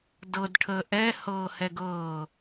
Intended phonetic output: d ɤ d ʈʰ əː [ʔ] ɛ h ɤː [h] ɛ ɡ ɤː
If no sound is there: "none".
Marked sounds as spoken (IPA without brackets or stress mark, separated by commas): ʔ, h